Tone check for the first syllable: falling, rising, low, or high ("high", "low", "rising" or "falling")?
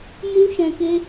high